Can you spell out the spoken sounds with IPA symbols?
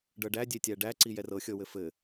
ɖ ɤ ɖ æ dʲ e tʲ æ ɖ æ ǀ i j ɛ r ɤ xʲ ɤ w ɘ f ɘ

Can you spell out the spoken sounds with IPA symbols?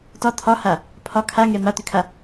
t ɒ t̪ʰ ɒ h a | pʰ ɒ kʰ a ŋ ɛ m a t̪ ʏ kʰ a

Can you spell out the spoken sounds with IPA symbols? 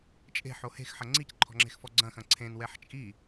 t͡ʃʼ e̤ ħ o h e̤ x ħ ɐ ŋ͡ǀ i c ǃʰ ɔ̤ ŋ͡ǁ e̤ x f ɔ ɡ͡ǀ ɐ̃ x ɐ̃ ǀʰ ẽ n w ɛ ħ t͡ʃʼ i

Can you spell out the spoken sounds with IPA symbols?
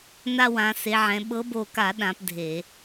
n a˦ w ã˨˦ s e˨˦ ʕ ɛ̃˨˦ ɓ ɤ˨˦ b o˧˩ k a˧˩˧ ɗ ã˨˦ p dʱ e˧˩˧

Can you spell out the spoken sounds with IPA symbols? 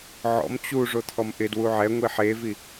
ʕ ɔ̰ m t͡ɕ u ʐ o t̪ʰ ɔ m ʔ ɪ d w u ʕ ɛ ŋʷ i ħ e v i

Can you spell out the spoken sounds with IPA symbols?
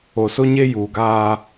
o˨ s o˦ ɲ e˦ j uː˨ ɡ aː˦

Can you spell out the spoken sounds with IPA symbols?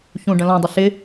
ç ũ ɖ ə̃ l ɔ̃ dˤ ə ɬ ɪ

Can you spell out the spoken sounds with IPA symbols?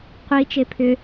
qʷ i t͡ʃ e pʰ ʏ

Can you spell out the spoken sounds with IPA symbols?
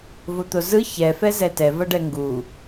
v o t̪ o z ɯ ç ɛ f ɛ z ɛ t ɛ v ʌ ɖ ɛ ŋ ɡ u

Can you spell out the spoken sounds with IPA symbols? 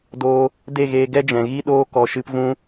d oː˧ | d e˦˨ ɣ eː˧ ɡ ɛ˦ d͡ʒ ɛ̃˨ ɣ i˦ ɗ oː˦ k ɔ˧ ʃ ɨ˦ p v ũ˦

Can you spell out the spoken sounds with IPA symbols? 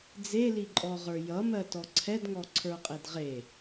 d͡z e l i ǃʼ ɔ ʁ ə˞ j ʌ m ɜ t ɔ ǀʰ ɛ d ŋ ɔ ǀʰ ə˞ qʼ e d ʁ e

